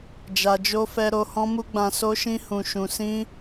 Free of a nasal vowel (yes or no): no